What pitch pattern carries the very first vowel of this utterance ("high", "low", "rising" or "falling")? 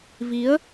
rising